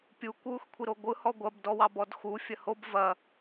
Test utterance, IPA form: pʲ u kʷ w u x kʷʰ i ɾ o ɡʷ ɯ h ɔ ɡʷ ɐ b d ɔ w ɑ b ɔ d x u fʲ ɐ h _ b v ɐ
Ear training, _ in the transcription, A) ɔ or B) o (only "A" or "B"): B